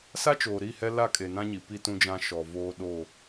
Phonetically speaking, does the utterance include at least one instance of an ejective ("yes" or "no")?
yes